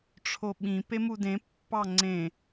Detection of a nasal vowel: present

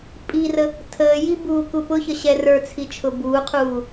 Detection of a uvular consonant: present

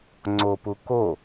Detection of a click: present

